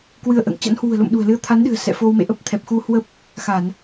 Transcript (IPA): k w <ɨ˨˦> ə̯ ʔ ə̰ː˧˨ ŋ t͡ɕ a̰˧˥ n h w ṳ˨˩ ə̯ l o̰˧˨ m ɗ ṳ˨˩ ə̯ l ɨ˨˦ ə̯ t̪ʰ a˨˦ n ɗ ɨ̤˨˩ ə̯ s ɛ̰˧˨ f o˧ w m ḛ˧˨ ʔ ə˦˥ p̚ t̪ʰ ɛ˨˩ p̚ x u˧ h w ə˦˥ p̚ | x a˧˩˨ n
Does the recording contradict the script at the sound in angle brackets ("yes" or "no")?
yes